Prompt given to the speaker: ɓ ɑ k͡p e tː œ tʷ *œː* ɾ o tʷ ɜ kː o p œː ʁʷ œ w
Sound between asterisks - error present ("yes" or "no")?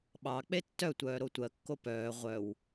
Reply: no